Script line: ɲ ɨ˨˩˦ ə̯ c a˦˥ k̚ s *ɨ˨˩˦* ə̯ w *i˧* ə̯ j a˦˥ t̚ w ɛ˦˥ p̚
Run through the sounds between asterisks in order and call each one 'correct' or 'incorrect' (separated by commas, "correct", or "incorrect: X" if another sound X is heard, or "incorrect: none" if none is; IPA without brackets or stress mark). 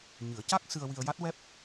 incorrect: ɨ˧, correct